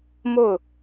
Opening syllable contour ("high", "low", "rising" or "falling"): falling